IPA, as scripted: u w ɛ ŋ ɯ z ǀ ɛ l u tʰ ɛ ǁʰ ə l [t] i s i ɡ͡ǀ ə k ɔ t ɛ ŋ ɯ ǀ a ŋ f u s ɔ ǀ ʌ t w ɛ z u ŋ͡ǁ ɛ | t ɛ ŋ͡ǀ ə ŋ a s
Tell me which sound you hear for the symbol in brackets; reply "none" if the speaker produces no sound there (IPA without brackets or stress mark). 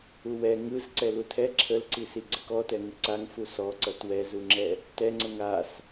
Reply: ǀ